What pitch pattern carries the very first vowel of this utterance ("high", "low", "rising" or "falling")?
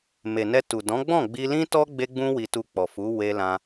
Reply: low